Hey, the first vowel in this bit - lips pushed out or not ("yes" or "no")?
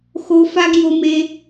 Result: yes